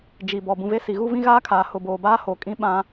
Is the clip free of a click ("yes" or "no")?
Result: yes